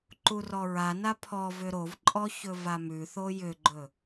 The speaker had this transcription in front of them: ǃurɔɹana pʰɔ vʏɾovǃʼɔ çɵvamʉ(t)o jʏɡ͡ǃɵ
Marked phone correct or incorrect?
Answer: incorrect: θ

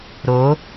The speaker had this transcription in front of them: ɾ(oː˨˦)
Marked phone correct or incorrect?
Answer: correct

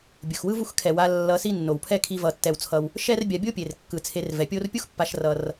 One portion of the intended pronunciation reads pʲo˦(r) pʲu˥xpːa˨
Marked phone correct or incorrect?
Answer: correct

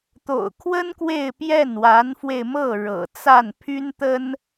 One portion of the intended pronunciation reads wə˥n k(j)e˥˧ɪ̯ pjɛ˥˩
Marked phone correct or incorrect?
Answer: incorrect: w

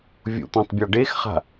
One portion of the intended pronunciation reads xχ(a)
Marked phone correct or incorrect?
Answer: incorrect: a̤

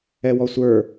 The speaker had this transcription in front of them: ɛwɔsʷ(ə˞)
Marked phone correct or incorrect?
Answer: correct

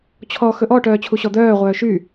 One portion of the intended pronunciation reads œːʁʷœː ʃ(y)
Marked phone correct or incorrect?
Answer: correct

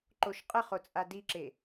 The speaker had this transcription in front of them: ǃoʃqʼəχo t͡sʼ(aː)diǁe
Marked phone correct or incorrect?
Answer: incorrect: a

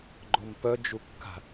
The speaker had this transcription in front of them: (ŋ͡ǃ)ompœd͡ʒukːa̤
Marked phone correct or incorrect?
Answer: incorrect: ɡ͡ǃ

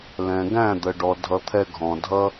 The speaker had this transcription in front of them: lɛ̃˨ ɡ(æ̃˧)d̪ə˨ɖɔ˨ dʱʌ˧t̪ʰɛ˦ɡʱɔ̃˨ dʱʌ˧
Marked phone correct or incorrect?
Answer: incorrect: æ̃˦˨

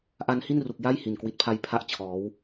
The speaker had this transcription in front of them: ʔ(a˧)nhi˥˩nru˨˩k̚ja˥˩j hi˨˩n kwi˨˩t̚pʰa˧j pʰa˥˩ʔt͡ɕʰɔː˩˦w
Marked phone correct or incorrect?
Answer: correct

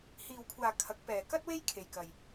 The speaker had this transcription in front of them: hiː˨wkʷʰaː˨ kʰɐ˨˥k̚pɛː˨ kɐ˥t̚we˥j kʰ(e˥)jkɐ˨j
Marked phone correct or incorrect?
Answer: incorrect: e˨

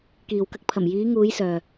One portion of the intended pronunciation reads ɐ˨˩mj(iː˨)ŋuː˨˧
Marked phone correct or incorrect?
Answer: incorrect: iː˨˧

